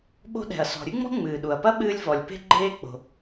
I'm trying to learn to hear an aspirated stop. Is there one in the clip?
no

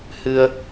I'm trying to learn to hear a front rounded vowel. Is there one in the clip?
no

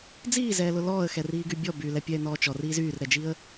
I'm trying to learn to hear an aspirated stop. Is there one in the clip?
no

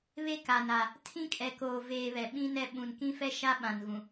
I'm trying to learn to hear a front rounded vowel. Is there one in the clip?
no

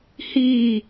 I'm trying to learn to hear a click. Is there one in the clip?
no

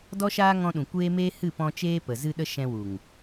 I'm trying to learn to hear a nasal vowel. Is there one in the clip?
yes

